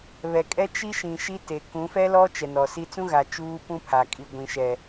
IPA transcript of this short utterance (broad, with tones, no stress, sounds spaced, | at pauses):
β ɛ˨ kʼ ɛ˦ t͡ʃ i˦ ʃ ĩ˨ ʃ i˦ t e˨ k ũ˨˦ f ɛ˦ l ɔ˦ t͡ʃ ɛ˨ n ɔ˨ s i˦ t͡s ũ˦ ɣ a˨ t͡ʃ uː˦ p ũ˦ pʰ a˨ kʼ i˨ ɡʷ ĩ˨ ʃ ɛ˨